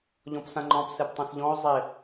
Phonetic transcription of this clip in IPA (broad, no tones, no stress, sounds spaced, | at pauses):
ʎ ɔ̃ p s ã ŋ͡ǃ ɔ̃ p s ɛ p tˤ ɛ̃ s ʎ ɔ̃ o̯ zˤ ɪ